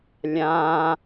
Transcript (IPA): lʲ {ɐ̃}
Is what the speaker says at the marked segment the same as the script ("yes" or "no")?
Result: no